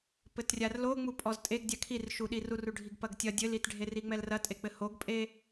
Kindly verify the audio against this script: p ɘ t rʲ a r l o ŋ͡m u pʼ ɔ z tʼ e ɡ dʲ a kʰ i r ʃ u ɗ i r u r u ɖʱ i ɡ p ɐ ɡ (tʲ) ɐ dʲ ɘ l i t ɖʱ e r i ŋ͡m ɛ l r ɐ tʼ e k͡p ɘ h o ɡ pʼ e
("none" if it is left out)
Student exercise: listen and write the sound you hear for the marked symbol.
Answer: tʲ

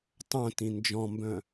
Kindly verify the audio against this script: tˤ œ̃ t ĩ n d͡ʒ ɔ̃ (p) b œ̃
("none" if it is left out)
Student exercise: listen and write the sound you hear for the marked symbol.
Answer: m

